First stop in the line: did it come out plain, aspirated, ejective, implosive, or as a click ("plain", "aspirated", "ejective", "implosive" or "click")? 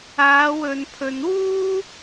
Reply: aspirated